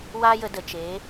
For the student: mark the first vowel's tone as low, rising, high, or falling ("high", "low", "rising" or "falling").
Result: high